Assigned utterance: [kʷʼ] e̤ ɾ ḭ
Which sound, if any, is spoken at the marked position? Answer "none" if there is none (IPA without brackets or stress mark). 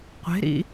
qʷ